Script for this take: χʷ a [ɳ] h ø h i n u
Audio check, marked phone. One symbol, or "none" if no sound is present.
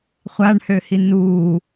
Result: ɳ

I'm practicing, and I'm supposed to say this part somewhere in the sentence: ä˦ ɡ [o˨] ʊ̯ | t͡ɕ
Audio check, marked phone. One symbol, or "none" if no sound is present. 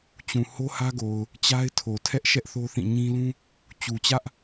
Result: o˨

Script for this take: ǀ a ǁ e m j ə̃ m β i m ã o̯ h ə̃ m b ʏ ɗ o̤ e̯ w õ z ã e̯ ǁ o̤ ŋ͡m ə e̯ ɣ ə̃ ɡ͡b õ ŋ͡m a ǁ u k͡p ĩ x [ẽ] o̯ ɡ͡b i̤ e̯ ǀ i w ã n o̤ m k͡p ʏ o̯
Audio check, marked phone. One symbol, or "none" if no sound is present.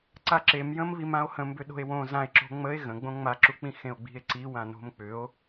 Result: ẽ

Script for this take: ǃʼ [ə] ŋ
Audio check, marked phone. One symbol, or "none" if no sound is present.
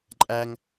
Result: æ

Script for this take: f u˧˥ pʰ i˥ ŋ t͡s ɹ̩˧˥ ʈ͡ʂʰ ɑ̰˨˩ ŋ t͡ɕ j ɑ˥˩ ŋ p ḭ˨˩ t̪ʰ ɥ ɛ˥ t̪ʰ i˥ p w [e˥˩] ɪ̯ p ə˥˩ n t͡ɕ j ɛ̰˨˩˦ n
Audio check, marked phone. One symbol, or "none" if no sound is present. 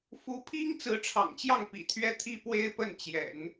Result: e˥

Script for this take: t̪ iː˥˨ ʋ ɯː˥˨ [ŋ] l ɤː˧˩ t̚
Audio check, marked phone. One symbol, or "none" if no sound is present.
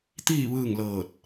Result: ŋ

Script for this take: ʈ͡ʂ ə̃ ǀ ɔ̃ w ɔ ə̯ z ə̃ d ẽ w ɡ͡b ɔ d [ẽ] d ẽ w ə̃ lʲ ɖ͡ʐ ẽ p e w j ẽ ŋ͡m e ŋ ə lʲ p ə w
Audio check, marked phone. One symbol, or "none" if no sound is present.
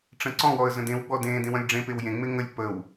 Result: ẽ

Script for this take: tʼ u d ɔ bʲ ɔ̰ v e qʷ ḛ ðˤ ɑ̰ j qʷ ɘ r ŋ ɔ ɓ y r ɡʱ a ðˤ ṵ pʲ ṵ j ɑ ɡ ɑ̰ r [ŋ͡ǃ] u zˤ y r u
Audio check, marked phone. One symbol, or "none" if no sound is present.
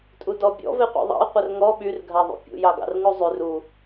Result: ŋ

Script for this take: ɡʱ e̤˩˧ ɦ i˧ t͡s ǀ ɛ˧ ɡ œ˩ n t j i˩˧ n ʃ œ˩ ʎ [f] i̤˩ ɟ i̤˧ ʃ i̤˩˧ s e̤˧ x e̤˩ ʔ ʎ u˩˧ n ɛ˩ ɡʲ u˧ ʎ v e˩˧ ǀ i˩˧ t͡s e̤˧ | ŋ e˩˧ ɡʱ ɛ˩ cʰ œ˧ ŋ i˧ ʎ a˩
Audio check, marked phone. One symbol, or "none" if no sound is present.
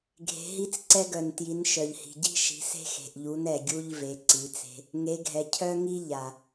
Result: h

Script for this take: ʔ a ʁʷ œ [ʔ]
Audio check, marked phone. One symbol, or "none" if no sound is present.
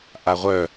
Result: none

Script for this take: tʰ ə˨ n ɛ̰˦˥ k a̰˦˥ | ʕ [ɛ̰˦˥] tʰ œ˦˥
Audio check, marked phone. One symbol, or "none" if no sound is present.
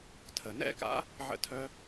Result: ə̰˦˥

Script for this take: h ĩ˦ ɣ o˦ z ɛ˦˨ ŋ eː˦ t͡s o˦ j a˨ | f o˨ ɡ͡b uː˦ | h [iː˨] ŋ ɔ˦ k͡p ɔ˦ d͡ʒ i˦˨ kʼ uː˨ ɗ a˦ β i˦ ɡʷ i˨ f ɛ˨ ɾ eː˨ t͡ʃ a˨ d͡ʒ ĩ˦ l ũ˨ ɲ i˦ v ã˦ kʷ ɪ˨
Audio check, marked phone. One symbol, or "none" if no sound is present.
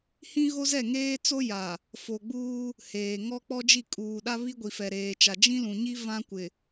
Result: eː˨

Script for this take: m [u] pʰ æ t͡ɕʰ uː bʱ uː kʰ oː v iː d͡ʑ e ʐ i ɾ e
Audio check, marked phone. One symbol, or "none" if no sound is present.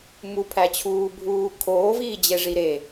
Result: u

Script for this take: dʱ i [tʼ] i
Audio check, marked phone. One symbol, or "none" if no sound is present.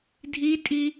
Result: tʼ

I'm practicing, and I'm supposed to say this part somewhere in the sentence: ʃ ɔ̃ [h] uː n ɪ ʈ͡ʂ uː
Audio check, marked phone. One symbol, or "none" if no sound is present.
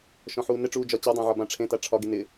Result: ħ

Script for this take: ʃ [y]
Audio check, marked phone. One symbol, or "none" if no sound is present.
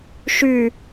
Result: y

